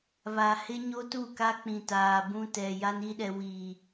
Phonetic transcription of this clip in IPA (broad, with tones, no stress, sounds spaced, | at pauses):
β a˨ h ɪ˦ ɲ o˦ t u˦˨ k a˦ k͡p ĩ˨ t aː˨ b ũ˦ t ɛ˨ j a˦ n i˦ ɗ ɛ˨ w i˨